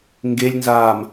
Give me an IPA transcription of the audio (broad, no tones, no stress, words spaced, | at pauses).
ŋɡelʲnzaːm